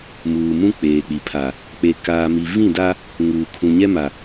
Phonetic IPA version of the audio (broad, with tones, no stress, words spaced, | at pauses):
muː˨mũ˦ k͡peː˨k͡pi˨ pʰa˨ | k͡pe˨kaː˨mi˨ vĩ˦˨da˦ | ŋuː˨ kʰũ˨ɲɛ˦ma˨